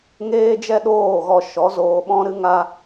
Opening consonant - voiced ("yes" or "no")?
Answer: yes